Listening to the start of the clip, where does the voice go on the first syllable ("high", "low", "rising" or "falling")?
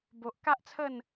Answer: low